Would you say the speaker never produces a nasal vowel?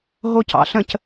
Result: no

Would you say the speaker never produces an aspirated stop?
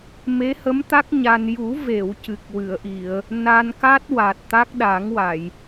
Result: yes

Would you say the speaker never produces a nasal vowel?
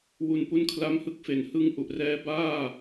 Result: yes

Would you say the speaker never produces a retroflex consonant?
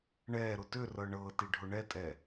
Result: no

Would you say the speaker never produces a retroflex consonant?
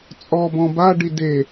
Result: no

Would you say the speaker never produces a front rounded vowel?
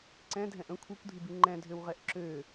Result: no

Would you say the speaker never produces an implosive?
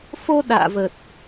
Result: no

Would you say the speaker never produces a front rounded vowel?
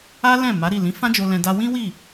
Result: yes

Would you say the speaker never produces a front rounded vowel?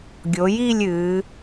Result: yes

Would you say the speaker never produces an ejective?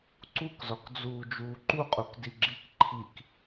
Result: no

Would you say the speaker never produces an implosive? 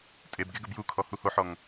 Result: yes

